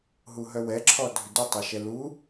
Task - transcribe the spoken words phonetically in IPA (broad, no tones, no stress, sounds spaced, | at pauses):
ɦ u ɦ œ w ɛ ǁʰ ɔ dʱ ʏ d u tˤ ɛ ʃ ɛ l u